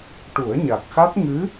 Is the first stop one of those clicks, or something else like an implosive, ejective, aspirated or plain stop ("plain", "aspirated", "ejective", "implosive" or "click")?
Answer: plain